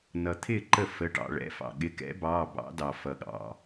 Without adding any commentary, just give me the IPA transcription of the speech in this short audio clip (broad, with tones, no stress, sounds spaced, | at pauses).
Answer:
n ʌ˩ t̪ʰ ɪː˥˩ ǃ ə˥˩ f ə˩˧˩ ʈ ɑ̰˩ ɭ ɛ̰˩˧˩ f ɑ̰˩ ɠ ɪ˩˧˩ k ɛ̰˨˥ b ɑː˩˧˩ b ɑ̰˨˥ d ɑ˩ f ʌ˩ ɠ ɑ̰˩